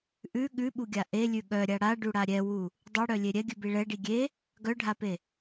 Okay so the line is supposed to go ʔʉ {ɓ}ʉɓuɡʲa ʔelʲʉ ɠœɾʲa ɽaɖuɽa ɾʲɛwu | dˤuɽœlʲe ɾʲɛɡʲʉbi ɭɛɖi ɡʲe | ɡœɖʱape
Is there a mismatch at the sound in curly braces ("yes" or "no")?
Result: yes